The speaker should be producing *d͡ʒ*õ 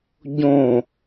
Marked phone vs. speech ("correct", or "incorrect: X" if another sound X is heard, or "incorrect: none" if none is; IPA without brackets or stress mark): incorrect: ɟ